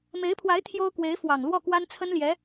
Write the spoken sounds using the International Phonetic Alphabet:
m e˧˥ ɪ̯ pʰ w a˧˥ ɪ̯ t̪ʰ j o˥ ʊ̯ k w e˧˥ ɪ̯ f w ɑ˨˩ ŋ l w ɔ˥˩ k w a˥ n t͡sʰ ə˥ n l j ɛ˧˥

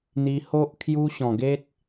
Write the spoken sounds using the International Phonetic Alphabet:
n̪ i˧ h o˦ ʔ kʰ j u˦ ɕ ɔ̃˨˩ ɡ e˦ t̚

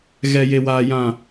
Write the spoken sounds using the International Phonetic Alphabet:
ɣ ɛ˨ j e˨ w aː˨ j ã˨

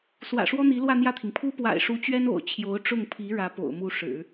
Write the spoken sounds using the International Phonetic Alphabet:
s w ä̰˨˩ ʂ w ɔ˥ n̪ i˧˥ l w ä˥˧ n̪ j ä˥˩ t̪ʰ i˩ ŋ pʰ u˥ p w a̰˨˩ ɪ̯ ʂ u˧˥ t͡ɕ ɥ ɛ˥ n o̰˨˩ ʊ̯ t͡ɕʰ j o˧˥ ʊ̯ ʈ͡ʂ ʊ˥˩ ŋ pʰ i˧˥ ɻ ä˧˥ p o̰˨˩ ʊ̯ m u˥˩ ʂ ɻ̩˨˩˦

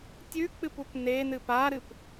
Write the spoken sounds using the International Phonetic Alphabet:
tʲ ʉ k͡p ɨ p u p n e n ɨ p a ɾ ɨ p

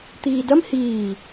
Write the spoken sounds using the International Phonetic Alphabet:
t̪ iː d ɐ m h iː

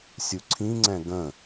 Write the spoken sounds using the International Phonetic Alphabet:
sʲ u ǀʰ ĩ ŋ͡ǀ ɛ̃ ɡ ə̃

